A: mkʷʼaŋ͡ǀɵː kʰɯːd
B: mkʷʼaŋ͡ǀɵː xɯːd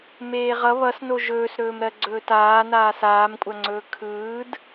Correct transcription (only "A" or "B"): A